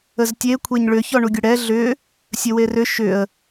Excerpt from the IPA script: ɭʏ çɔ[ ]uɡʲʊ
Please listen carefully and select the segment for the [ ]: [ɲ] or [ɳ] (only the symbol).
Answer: ɳ